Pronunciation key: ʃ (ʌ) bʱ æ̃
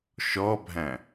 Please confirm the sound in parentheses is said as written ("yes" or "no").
no